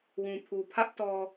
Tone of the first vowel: low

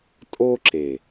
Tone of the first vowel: high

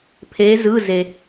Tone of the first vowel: rising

